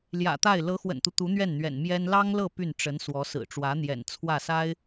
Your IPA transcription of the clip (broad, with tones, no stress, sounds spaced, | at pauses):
l j ä̰˨˩ t̪ a˥˩ ɪ̯ l ɤ˧˥ x w ə̰˨˩ n t̪ u˦ t̪ u˧˥ n̪ ɥ ɛ˥˩ n n̪ ɥ ɛ̰˨˩ n m j ɛ˥ n l ɑ˥ ŋ l ɤ˥˧ p y˥˩ n ʈ͡ʂ ə˧˥ n s w ɔ˧˥ s ɹ̩˨˩ ʈ͡ʂ w ä˧˥ n̪ j ɛ̰˨˩ n t͡sʰ w ä˥˩ s a˥ ɪ̯